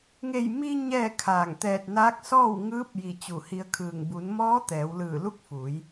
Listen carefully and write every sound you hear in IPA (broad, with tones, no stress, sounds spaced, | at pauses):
ŋ e˧˩ j m i˧ ɲ ɛː˥˨ kʰ aː˧˩ ŋ t̪ ɛː˧˩ t̚ n aː˧˥ k̚ s ɔː˥˨ w ŋ ɯː˧˥ p̚ j i˧˩ t͡ɕ u˧˩ h i˧ ə̯ kʰ ɯː˧˩ ŋ b u˩˧ n m ɔː˧˥ t̪ ɛː˩˧ w l ɯː˧˩ l u˥˨ k̚ f uː˩˧ j